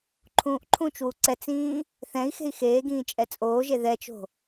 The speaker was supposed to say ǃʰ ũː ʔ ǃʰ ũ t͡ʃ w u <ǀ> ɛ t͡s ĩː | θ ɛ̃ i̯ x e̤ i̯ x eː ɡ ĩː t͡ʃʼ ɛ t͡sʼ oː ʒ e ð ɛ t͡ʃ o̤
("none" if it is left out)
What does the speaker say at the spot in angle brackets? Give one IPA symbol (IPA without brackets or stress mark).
ǀ